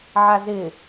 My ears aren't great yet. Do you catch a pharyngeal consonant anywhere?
yes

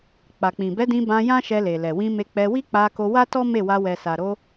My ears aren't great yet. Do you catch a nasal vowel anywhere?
yes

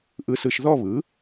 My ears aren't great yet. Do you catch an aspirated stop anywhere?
no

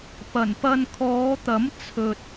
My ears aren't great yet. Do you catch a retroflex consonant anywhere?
no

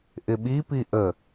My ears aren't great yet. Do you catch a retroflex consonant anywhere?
no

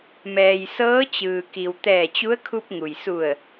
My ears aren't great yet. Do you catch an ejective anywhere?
no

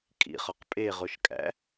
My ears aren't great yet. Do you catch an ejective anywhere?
yes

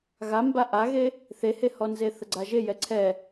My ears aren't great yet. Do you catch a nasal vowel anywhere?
no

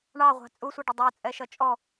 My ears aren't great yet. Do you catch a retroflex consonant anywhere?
yes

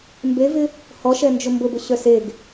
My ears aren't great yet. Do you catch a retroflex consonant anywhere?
no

